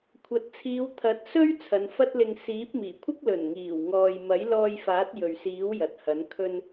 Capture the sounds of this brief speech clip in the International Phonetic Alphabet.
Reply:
kʷʰɐ˨t̚ t͡sʰiː˨˧wt̪ʰɐ˨˥t̚sɵ˥ɥ t͡sʰɐ˨˧nfɐ˥t̚lɪ˧ŋ siː˨˥p̚miː˨˩kʷʰɪ˥k̚ lɵ˨˩nŋiː˨˩w ŋɔː˨jmɐ˨˥jlɔː˧jfaː˨˥t̚ jɵ˨ɥsiː˨˥w jɐ˨t̚hɐ˨˥n kʰɵ˧n

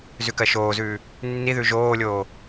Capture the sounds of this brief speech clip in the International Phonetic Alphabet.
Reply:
zʉkɜʃoːzʉː | nːiðʉ ʒoːlʲoː

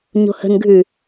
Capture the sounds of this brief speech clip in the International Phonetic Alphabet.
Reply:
ɲo̤hə̤nɡʱʉ

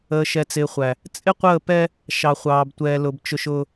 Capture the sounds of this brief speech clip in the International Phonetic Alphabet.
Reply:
əː˨ʃɛ˨t͡sɪː˨χʷæ˨ | t͡sʼɪ˦qʷəː˦˨pɛ˦ | ʃɑ˨χʷɑː˨btʷɛː˨lʊ˨b t͡ʃʊ˨ʃ ʊː˨

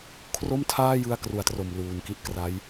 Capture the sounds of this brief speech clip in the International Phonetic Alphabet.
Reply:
kʰro˥˩mtʰaː˥˩jɯ˧a̯ kru˨˩a̯tro˨˩m luː˨˩nki˦˥ʔkra˦˥j

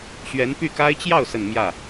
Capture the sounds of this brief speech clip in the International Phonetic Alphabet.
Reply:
ɕɥɛ˧˥npy˥˩ka˥ɪ̯ t͡ɕjɑ˥˩ʊ̯sə˨˩n mjä˥˩

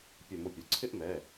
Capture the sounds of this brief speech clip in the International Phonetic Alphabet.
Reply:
pʲʊ˧˩˧m ʊ˧˩˧pʲo˩ǀʰɪ˥˧ʔmɛ˩˧˩

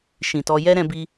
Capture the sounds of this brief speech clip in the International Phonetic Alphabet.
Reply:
ʃĩ˧tɔ˦ jɛ˦ ɾɛ̃˦bi˦

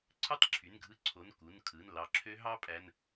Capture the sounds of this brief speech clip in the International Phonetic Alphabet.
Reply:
ǀʰɯ˦˥tˤǁʰy˩˧˩n ɡʱɯ˦˥ǀʰo˩˧˩n ku˩˧˩nkʰɯ˩˧˩n lɑ˧˩ǁʰø˦˥ ɦɑ˦˥pʼæ˩˧˩n

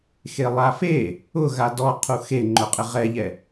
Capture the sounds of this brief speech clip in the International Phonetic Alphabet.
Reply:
xelˠafe | ʊɣa dɔ qʰuxe ŋ͡ǃʊqʼɪʁɛʎɛ

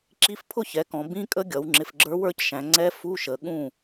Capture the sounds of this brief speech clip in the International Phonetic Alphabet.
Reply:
ǁi˧˥˧fpʰʊ˥˩çɛ˩˧kɔ̃˩˧ bĩ˧˥˧kʼə˧˥ɡʲʌ˩˧w ŋ͡ǁɪ˨˩fɡ͡ǁə˞˧˥wə˞˥˩cʃæ̃˩˧ ŋ͡ǀɛ˧˥fu˧˥˧ʃə˩˧ ɠũ˥˩

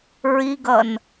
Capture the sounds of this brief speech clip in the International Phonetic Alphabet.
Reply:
ɹiɡʌn

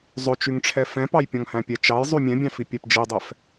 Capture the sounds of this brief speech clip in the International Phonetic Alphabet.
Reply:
zˤøt͡ʃyŋʈ͡ʂʰɛ fɛ̃pɑjpʲɔ̃ŋhæ̃ pʲɛt͡ʃɑj zˤymʲɛ̃bʲɑ̃fi pʲæpd͡ʒidˤɛf

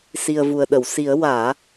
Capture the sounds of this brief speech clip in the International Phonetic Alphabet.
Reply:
si˨˩ə̯vu˨˩ə̯ɗə˨˩˨wsi˨˩˦ə̯ waː˨˩˦

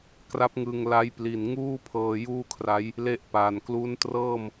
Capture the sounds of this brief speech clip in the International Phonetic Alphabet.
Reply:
kra˦˥p̚ ŋɯ˧ŋla˦˥jpli˨˩n ŋuː˥˩pʰɤː˧ juː˥˩kʰra˦˥j | le˥˩ʔpaː˨˩n klu˦˥ntrɤː˥˩m

